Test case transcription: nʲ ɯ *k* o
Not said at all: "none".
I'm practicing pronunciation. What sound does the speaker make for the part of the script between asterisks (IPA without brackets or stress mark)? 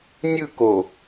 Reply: k